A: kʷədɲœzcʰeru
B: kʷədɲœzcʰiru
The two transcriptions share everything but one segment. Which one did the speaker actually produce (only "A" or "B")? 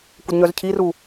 B